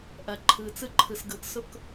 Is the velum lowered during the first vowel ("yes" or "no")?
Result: no